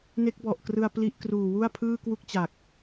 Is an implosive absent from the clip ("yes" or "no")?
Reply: yes